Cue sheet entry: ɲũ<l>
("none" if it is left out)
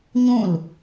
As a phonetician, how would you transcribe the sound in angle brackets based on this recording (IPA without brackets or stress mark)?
l